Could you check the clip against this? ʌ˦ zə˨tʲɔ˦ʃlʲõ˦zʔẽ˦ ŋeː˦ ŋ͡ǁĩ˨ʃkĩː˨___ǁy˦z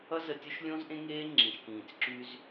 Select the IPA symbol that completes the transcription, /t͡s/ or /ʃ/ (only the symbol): t͡s